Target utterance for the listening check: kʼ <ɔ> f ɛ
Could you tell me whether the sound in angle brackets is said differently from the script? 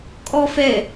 no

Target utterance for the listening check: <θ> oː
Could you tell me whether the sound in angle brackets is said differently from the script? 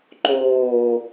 yes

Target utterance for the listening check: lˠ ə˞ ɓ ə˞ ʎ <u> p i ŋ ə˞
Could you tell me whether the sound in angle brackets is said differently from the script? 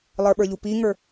no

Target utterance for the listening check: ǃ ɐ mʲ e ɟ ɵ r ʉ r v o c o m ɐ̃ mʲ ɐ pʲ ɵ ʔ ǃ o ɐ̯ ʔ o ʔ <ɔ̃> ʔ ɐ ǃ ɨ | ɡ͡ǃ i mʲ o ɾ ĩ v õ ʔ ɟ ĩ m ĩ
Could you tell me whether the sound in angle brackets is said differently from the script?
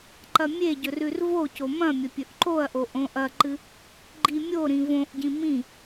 yes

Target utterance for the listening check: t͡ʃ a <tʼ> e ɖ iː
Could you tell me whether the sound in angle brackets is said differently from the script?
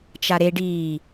yes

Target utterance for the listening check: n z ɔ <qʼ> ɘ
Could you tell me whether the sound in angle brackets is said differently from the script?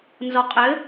no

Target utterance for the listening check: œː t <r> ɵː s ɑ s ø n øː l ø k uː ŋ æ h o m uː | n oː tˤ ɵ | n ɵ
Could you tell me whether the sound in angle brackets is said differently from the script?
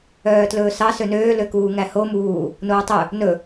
yes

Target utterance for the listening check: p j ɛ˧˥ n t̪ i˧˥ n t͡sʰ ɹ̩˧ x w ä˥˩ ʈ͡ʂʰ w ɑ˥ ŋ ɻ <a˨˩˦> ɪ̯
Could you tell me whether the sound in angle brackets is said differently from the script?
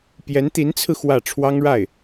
yes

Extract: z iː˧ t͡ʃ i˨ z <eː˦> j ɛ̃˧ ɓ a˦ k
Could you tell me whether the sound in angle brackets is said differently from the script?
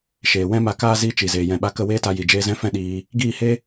yes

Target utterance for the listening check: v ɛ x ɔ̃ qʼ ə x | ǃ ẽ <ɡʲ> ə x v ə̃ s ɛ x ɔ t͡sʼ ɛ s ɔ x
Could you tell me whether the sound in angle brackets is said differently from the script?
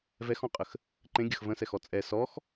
no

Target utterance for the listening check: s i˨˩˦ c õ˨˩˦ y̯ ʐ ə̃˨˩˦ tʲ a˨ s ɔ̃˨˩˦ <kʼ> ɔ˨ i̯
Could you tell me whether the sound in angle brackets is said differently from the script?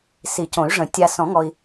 yes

